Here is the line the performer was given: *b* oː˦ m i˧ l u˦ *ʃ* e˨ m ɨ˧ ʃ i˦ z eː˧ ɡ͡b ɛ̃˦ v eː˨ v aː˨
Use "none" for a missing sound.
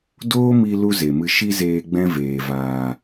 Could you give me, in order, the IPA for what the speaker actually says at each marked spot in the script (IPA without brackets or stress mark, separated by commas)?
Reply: d, z